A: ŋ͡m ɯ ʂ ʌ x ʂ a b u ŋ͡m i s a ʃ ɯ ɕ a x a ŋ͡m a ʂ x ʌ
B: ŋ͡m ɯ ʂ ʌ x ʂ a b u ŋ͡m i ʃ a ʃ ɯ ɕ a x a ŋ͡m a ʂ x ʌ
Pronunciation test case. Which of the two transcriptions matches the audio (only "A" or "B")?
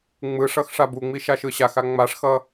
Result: B